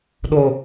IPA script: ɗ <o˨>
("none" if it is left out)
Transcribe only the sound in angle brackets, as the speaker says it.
o˨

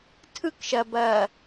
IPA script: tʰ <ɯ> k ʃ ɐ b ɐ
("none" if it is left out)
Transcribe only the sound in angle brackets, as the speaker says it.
ɯ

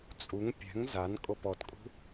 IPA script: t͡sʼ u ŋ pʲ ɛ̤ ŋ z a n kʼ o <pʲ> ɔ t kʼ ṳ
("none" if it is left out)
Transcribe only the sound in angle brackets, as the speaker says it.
p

